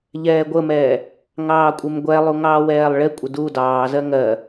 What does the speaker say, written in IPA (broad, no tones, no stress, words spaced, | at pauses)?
ʎɛːɡʷəmɛː | ŋɑːkʷʼɪmɡʷɛlˠu ŋɑːwɛːlˠɭɪkʷʼɪ du dɑːzɜ ŋɜ